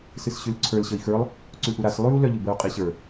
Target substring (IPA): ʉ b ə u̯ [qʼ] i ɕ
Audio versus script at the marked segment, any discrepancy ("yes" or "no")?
no